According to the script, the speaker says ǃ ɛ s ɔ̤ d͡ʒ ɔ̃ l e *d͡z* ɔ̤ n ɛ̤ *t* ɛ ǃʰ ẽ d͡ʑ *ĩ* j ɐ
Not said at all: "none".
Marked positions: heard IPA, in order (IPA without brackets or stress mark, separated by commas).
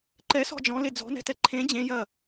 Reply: d͡z, t, ẽ